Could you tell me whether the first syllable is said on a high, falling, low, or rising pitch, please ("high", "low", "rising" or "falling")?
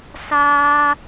high